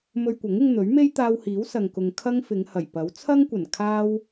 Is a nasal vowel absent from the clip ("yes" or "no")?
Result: yes